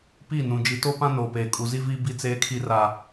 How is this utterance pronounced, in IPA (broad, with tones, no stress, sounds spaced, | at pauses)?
p i˦˨ n ũ˨ d͡ʒ i˨ t o˦ p ã˦ n oː˨ p eː˨ kʼ u˨ z i˦ v iː˦ b i˦ t͡s eː˦ kʰ i˦ r a˦